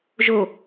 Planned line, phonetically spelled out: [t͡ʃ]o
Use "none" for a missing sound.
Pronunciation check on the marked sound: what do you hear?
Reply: ʒ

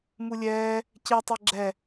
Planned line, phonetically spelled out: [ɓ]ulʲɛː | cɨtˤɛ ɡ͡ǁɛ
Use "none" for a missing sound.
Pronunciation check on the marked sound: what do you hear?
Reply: m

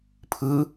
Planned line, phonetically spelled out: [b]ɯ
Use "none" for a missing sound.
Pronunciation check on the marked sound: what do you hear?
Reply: pʰ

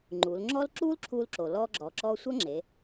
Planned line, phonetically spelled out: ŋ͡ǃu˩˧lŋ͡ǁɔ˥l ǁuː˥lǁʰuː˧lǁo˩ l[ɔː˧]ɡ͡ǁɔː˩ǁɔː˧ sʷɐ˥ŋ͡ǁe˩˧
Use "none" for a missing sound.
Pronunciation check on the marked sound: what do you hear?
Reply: ɔː˧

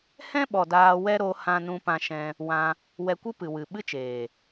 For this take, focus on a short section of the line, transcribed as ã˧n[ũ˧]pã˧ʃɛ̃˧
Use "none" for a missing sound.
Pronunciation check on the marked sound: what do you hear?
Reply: ũ˧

